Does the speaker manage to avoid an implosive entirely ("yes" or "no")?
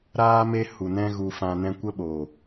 no